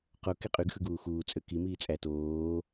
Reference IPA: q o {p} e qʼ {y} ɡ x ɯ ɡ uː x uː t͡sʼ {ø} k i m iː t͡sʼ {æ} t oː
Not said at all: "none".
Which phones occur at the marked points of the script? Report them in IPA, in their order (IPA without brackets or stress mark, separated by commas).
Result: k, y, ø, æ